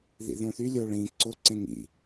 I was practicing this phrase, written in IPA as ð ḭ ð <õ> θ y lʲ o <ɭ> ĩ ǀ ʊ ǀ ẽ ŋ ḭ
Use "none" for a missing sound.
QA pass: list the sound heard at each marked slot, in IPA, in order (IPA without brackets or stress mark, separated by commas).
õ, ɭ